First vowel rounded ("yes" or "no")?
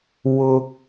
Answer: yes